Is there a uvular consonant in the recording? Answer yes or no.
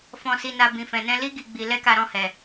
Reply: no